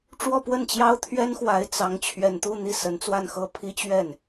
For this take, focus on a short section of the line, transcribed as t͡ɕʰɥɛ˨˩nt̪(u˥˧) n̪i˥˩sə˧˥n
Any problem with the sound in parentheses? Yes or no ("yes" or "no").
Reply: no